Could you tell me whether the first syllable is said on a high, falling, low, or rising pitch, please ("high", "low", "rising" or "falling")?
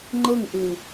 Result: falling